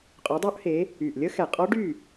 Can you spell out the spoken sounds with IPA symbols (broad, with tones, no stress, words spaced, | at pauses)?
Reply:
qʼø˨˦dˤu˦˥ʔhe˨˦ | y˨˩ʔ lʲə˦˥xɛ˨˩qʼɔ˦˥ ɖy˥˨